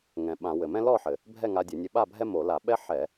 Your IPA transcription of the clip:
ŋ ɛ̃˨˩ ɓ ã˧˩˧ w ɘ˨˩ m ɛ̃˥ l ɔ˥˨ ħ ɘ˨˩ | bʱ ɛ˥˨ ŋ a˧ dʲ ɘ˧˩˧ nʲ ɘ˧ ɓ a˥˨ bʱ ɛ˥ m o˧˩˧ l a˧˩˧ ɓ ɛ˥ ħ ɛ˧˩˧

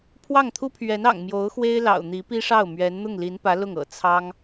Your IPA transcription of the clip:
pʰ w ɑ˥˩ ŋ t̪ʰ u˥ pʰ ɥ ɛ˧˥ n ɑ̰˨˩ ŋ m j o˧˥ ʊ̯ x w e˥ ɪ̯ l ɑ̰˨˩ ʊ̯ n̪ i˧˥ p i˥ ʂ ɑ˥˩ ʊ̯ m ɥ ɛ˧˥ n n̪ ʊ˥˩ ŋ l i˧˥ n p ä˧˥ l ʊ˥˩ ŋ ɤ̰˨˩ t͡sʰ ɑ˥ ŋ

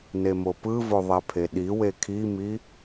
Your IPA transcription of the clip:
n e m o p ɯ v o ðˤ ɛ pʰ e ɗ i w e kʰ i m i

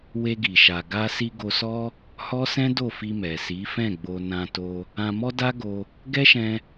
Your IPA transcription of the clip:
w e˧ ɡ i˨ ʃ a˨ ɡ a˧ s i˧ ɡ o˧ s ɔ˦ | h ɔ˦ s ɛ̃˦ d o˦˨ f i˧ m ɛ˨ s i˨˦ f ɛ̃˦˨ ɡ͡b o˧ n ã˧ t o˧ | ã˧ m ɔ˦ d a˦ ɡ o˧ | ɡ ɛ˦ ʃ ɛ̃˧

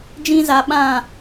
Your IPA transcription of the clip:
d͡ʒ ĩ˦ z a˨˦ ɓ ã˦˨

